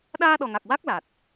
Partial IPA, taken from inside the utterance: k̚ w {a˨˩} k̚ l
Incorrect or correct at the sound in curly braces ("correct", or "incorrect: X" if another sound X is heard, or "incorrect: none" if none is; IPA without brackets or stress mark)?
incorrect: a˦˥